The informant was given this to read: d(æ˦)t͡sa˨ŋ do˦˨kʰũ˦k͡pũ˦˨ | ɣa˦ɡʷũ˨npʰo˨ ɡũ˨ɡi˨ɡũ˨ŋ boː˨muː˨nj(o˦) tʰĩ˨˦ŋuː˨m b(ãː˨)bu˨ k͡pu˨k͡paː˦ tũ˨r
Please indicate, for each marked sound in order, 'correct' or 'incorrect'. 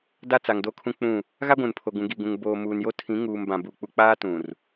incorrect: a˦, correct, incorrect: ã˨

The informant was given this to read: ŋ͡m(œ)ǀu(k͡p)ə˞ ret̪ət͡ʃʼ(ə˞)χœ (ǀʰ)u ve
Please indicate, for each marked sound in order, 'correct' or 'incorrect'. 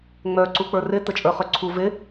correct, correct, correct, correct

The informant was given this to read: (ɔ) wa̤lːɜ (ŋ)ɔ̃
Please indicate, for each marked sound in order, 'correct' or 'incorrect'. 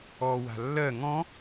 correct, correct

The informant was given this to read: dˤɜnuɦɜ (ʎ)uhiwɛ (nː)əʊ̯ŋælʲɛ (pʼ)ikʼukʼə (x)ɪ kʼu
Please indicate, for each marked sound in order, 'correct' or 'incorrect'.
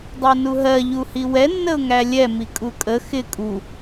correct, correct, incorrect: m, correct

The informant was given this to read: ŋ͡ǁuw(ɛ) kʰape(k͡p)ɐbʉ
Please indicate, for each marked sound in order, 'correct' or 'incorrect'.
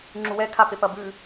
correct, incorrect: p

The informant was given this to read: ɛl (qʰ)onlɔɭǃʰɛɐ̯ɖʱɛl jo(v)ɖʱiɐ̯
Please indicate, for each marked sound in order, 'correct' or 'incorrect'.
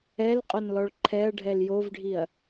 incorrect: qʼ, correct

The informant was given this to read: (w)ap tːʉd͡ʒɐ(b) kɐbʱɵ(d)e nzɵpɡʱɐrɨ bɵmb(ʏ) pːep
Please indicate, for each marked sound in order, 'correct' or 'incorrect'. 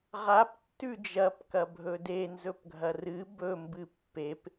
incorrect: ʁ, incorrect: p, correct, incorrect: ɨ

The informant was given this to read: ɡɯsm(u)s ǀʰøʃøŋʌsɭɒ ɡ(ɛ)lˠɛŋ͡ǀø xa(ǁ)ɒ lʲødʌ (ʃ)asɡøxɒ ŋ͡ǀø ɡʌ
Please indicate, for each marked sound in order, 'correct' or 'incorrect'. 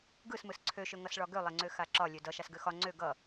incorrect: ɯ, incorrect: ø, correct, correct

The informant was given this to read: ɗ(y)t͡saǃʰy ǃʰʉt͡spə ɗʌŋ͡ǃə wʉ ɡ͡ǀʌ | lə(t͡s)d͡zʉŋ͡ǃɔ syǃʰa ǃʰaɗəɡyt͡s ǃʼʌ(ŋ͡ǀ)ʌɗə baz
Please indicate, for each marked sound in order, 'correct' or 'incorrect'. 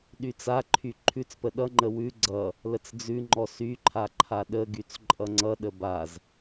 correct, correct, correct

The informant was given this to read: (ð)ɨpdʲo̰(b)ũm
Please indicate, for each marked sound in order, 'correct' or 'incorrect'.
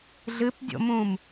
incorrect: ɮ, incorrect: m

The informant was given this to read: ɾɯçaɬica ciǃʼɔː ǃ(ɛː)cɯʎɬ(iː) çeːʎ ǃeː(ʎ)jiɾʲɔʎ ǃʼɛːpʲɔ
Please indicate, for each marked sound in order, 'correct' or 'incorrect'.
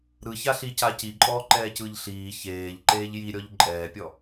correct, correct, correct

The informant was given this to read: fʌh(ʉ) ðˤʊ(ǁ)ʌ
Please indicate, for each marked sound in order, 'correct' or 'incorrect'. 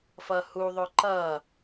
incorrect: u, incorrect: ǃ

